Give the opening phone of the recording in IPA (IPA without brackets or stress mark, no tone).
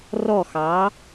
r